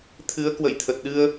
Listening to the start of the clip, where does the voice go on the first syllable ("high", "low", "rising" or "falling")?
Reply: rising